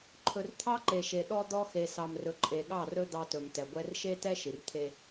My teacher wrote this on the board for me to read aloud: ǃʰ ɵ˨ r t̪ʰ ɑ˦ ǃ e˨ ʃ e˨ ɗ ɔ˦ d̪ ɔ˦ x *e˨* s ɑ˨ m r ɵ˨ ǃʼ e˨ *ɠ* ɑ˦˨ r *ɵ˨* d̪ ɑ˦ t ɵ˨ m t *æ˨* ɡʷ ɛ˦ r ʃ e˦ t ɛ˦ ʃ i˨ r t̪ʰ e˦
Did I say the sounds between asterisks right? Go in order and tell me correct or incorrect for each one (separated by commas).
correct, correct, incorrect, incorrect